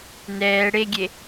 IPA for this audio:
n ɛː ɽ e ɡʲ e

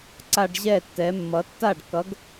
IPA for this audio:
ǀ a˦ ɖ ʑ ɛ˥˩ tː ɛ˨˥ mː ʌ˨˥ tː a˥˩ ɖ k ʌ˨˥ ɡ

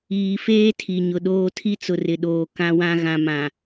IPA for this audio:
iː˨ f eː˦ tʰ i˨ ɲ ʊ˨ ɗ oː˦ tʰ i˦ t͡s ʊ˨ r ɪ˨ ɗ oː˨ k ã˦ w ã˦ ɣ ã˨ m ã˨

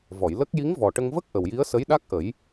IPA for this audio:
v ɔ˨˩˨ j l ə˦˥ k̚ j i˧˥ ŋ v ɔ˨˩ ʈ ə˧ ŋ v ə˦˥ k̚ ʔ ə˨˩ w j i˧˥ ə̯ s ə˧˥ j ɗ a˦˥ k̚ ʔ ə˨˩˦ j

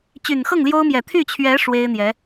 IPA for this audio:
t͡ɕ y˨˩ n x ɤ˥˩ ŋ l j o˥ ʊ̯ m j ɛ˨˩ t̪ʰ y˥˩ t͡ɕʰ ɥ ɛ˧˥ ʂ w e˥ ɪ̯ n̪ j ɛ˧˥

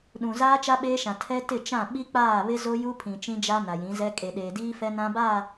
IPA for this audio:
ɗ ũ˨ z aː˦ t͡ʃ a˦ ɓ eː˦ ʃ ã˨ tʰ ɛ˦ t ɪ˦˨ t͡ʃ ã˦˨ ɓ i˦ k͡p aː˦˨ β ɪ˦ z o˦ j u˦ pʰ ĩ˨ t͡ʃ ĩ˦ d͡ʒ a˦ n a˨ j ĩ˨˦ z ɛ˦ kʼ e˨ ɗ eː˨ d iː˦ f ɛ˦ n ã˦ b a˦˨

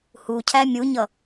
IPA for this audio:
h u cʰ æ mʲ u ɲ ʌ

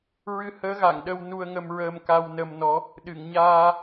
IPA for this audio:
ɹ ɨ˧ h əː˧˥ ɣ a˨˩˨ ŋ ɗ ə˧ w n u˧ ə̯ ŋ ə˧ m ɹ əː˧ m k a˧ w n ə˧ m n ɔ˧˥ | ɗ ɨ˨˩˨ ŋ ɲ aː˧

